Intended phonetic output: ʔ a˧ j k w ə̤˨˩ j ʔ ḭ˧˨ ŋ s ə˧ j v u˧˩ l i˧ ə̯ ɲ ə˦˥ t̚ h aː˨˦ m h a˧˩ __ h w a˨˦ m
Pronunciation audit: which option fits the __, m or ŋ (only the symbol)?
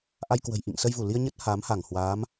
ŋ